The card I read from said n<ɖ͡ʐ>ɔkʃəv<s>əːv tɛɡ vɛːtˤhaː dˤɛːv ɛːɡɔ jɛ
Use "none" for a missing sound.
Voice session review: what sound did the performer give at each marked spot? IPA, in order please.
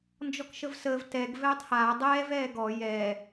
d͡ʒ, s

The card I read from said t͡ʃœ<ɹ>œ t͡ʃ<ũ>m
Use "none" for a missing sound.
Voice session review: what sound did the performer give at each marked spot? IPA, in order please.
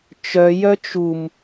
j, u

